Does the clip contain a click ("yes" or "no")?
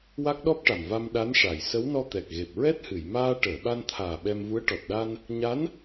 no